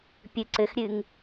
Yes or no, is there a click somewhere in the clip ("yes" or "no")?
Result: yes